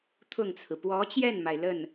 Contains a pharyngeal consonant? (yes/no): no